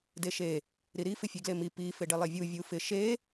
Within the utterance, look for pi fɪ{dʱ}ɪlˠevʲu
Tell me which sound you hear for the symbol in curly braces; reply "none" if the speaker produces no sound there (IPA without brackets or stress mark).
ɖ